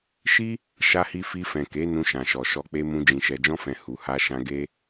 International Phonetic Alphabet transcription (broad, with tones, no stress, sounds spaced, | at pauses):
ʃ i˦ | ʃ a˧ h i˧ f i˧ f ɛ̃˨ k e˨˦ n ũ˧ ʃ ã˨ ʃ ɔ˨ ʃ ɔ˧ k͡p e˧ m ũ˧ d͡ʒ ĩ˨ ʃ ɛ˨ d͡ʒ ɔ̃˧ f ɛ̃˨ h u˨ h a˧ ʃ ã˧ ɡ e˦